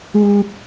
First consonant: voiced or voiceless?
voiceless